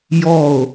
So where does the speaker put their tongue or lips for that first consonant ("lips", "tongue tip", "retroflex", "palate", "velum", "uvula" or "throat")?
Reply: palate